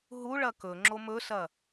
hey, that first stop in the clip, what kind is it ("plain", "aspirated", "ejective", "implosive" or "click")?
plain